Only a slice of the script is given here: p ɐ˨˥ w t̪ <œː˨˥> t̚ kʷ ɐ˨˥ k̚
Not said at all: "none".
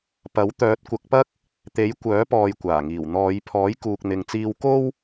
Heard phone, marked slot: œː˨˥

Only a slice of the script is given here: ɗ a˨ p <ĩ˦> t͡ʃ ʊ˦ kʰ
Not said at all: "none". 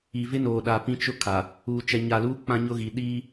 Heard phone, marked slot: ĩ˦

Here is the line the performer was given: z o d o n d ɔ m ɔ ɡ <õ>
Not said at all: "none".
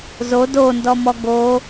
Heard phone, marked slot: o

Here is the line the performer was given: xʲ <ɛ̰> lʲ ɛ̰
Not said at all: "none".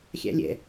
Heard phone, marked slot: æ̰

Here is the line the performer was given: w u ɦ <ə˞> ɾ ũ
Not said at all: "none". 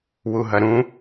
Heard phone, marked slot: ɐ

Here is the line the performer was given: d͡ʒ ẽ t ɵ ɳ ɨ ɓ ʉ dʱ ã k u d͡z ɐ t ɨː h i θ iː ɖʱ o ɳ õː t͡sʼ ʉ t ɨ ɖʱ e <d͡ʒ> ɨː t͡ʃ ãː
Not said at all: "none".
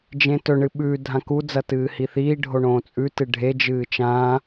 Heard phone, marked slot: d͡ʒ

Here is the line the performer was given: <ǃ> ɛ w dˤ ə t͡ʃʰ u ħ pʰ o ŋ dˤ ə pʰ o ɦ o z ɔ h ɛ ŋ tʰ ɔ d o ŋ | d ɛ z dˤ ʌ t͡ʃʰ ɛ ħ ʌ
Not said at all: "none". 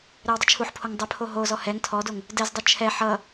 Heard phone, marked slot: ɾ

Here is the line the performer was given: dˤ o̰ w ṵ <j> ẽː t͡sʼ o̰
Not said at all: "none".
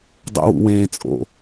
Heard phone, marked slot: w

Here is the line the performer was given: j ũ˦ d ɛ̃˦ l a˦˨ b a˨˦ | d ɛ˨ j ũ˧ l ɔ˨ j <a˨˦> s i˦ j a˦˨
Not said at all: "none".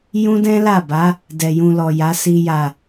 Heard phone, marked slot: a˨˦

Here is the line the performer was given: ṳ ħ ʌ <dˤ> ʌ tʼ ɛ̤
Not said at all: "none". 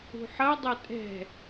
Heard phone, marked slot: dˤ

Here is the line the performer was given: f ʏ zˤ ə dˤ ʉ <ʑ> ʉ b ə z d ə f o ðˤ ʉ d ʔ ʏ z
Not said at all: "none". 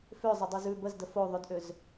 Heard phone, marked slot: z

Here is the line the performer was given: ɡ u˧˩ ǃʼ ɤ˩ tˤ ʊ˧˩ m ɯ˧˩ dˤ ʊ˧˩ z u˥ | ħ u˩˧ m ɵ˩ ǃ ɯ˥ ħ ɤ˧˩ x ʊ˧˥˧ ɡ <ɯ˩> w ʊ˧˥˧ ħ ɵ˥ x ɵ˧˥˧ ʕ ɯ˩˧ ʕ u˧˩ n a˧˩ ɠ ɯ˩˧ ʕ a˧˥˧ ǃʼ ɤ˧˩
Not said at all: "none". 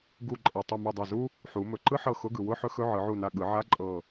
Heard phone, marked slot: ɯ˩˧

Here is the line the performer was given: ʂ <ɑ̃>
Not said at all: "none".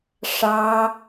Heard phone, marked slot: ɑ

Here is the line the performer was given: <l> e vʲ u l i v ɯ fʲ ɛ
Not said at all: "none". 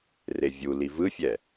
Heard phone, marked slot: r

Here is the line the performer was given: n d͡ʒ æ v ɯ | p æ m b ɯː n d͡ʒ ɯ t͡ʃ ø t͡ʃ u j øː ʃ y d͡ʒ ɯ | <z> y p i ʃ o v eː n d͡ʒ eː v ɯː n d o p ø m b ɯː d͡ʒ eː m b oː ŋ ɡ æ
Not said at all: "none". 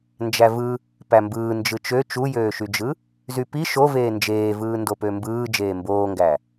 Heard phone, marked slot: z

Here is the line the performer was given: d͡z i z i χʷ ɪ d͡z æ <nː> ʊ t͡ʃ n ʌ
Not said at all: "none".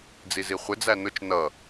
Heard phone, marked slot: n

